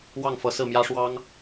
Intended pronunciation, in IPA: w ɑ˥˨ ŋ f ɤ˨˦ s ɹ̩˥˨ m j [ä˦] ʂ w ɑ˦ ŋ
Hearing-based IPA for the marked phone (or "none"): ä˦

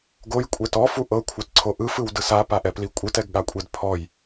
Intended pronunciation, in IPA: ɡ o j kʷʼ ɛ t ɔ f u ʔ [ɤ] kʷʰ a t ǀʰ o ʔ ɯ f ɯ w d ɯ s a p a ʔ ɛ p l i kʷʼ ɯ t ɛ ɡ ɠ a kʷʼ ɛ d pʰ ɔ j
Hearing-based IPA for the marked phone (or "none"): ɤ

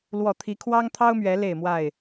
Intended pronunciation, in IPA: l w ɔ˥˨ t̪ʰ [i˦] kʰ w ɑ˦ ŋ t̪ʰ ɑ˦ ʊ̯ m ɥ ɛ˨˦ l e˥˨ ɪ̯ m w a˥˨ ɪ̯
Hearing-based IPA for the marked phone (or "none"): i˦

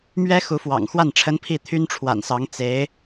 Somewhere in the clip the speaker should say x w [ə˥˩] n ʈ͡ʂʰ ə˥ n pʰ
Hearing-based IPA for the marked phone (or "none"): a˥˩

